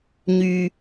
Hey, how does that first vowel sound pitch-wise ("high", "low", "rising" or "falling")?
low